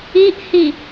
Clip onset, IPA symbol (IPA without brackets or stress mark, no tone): i